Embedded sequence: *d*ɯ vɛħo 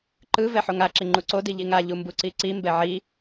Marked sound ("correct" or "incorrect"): incorrect